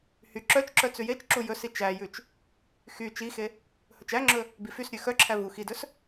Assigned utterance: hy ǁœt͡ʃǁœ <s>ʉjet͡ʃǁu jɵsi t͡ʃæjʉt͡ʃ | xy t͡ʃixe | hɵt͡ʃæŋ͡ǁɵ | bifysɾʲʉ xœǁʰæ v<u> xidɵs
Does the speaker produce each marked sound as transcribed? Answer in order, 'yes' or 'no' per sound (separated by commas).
no, yes